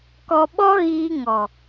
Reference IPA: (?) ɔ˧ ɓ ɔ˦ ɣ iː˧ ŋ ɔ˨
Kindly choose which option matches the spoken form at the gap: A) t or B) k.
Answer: B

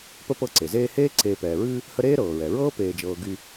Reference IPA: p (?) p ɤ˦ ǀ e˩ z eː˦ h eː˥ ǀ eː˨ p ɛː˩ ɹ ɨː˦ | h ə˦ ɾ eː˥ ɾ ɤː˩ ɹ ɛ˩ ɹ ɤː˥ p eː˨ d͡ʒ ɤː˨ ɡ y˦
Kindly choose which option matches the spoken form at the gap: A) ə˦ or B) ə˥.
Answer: B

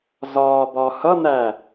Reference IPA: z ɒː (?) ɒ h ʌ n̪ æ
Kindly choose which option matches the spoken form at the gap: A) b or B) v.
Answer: A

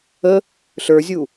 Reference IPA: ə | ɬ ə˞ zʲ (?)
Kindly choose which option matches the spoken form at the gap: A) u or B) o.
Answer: A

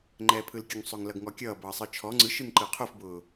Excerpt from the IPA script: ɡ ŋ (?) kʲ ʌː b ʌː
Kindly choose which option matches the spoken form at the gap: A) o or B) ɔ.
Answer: B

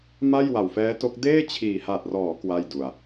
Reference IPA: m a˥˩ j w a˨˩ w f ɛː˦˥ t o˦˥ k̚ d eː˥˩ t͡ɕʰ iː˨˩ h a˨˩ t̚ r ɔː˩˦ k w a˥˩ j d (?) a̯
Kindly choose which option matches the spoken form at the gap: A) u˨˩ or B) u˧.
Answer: A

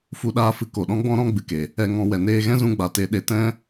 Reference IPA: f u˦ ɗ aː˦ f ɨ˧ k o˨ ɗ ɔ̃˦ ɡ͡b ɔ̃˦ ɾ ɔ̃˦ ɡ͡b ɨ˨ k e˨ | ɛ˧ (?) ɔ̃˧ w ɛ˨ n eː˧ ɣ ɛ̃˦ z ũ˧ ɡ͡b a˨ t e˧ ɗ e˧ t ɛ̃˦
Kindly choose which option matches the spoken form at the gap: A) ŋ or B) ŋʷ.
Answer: A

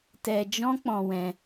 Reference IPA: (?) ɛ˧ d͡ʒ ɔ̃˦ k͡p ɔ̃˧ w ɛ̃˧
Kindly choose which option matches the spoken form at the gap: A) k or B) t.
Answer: B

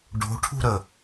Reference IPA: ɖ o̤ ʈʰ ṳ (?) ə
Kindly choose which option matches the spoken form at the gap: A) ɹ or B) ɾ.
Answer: B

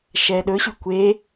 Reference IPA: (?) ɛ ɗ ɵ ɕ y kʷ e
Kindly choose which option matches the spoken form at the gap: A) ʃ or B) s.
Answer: A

